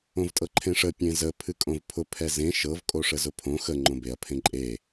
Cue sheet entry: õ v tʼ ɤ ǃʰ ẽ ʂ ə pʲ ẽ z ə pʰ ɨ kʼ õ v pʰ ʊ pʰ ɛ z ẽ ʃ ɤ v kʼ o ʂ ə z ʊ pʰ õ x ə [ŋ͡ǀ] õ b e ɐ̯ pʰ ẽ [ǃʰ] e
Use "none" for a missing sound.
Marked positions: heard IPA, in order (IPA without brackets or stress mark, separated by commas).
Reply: ŋ͡ǃ, ǃʼ